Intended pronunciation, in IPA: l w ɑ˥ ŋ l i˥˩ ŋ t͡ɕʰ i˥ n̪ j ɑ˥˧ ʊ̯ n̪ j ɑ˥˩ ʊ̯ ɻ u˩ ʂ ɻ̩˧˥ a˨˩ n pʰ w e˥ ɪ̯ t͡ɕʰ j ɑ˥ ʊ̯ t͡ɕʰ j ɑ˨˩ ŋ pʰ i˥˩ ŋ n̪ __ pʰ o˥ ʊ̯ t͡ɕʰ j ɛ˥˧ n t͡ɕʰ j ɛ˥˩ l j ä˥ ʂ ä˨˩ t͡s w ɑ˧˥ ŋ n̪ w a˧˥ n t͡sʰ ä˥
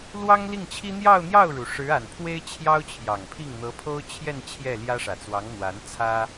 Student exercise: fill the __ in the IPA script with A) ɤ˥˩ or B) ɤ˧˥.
B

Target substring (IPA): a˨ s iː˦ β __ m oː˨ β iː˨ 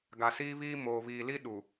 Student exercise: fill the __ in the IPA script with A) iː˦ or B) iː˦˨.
A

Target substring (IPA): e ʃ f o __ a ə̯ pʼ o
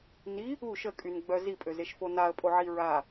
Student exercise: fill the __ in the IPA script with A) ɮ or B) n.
B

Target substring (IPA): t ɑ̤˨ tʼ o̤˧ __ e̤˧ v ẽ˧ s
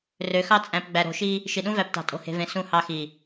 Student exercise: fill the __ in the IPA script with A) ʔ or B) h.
B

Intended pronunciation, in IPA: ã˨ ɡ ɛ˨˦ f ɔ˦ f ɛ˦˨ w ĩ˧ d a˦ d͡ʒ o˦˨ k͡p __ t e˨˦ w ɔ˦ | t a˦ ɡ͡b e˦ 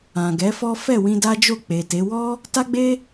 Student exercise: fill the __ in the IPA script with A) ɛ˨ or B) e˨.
B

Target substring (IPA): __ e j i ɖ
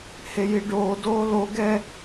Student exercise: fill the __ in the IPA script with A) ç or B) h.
B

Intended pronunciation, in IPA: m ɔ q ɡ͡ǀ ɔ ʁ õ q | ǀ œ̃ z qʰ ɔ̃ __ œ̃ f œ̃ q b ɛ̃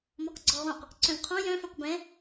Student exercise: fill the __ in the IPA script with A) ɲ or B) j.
B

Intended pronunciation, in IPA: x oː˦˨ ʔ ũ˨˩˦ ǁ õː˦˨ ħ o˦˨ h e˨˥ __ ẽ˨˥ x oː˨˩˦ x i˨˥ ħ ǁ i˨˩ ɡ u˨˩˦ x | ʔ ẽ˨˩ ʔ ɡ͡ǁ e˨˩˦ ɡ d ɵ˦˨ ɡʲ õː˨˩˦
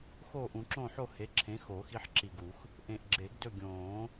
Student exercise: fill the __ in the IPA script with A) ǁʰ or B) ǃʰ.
A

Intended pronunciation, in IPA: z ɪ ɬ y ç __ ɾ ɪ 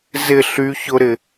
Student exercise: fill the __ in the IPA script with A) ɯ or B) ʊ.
B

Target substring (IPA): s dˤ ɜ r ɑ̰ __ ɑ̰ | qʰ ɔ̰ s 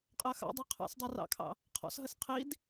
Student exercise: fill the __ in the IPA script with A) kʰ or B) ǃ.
A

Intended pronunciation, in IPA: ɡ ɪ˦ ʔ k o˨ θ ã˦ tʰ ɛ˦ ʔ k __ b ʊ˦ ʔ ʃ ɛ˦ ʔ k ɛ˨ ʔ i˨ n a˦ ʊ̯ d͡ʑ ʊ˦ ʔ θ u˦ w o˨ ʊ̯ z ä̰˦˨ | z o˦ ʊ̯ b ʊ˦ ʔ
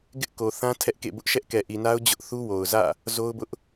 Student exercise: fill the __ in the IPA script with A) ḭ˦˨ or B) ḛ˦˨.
B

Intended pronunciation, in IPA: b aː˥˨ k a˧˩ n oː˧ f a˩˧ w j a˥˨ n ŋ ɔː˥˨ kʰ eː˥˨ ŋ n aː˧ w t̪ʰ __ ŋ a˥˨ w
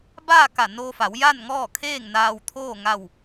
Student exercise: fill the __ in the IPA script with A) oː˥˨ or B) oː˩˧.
A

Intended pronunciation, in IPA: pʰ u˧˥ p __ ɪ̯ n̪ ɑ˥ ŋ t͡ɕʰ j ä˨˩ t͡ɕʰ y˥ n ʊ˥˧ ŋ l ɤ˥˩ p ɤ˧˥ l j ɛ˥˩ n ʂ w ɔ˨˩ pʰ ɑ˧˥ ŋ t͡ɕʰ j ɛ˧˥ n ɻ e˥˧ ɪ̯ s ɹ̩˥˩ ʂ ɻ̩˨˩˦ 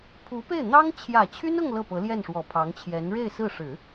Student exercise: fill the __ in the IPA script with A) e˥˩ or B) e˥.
A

